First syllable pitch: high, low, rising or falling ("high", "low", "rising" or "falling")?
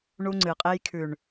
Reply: high